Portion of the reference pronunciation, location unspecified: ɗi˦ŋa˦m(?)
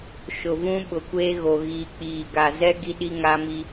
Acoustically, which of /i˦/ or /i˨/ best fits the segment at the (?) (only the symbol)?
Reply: i˦